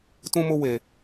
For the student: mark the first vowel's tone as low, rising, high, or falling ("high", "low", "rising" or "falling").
high